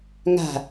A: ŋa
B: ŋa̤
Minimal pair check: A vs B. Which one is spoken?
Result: B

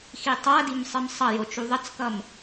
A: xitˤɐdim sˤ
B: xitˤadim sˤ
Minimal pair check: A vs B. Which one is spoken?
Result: B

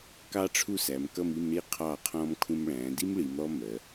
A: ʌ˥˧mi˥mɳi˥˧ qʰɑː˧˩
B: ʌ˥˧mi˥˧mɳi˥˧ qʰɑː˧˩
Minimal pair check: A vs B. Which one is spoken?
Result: B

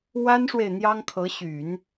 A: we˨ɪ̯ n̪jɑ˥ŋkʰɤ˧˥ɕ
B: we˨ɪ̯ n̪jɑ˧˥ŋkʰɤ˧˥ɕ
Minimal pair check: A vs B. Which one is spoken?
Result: A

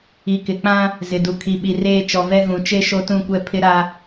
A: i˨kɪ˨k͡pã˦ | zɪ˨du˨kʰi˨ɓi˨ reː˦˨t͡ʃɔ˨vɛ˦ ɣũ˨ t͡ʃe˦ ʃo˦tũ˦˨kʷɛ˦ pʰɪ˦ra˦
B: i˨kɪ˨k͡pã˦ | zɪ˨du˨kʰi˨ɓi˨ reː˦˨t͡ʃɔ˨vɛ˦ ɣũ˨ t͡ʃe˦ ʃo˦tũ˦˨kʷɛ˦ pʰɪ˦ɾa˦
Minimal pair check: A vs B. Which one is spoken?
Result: B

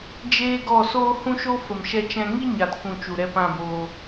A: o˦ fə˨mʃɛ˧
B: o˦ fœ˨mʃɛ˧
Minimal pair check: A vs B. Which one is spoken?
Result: A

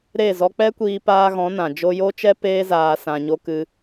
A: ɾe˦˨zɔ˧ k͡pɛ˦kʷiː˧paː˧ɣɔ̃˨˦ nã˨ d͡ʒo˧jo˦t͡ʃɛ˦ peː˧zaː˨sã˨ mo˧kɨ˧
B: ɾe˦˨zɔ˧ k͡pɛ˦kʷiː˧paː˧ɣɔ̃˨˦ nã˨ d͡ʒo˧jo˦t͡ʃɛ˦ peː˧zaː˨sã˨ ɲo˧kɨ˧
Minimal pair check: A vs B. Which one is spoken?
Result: B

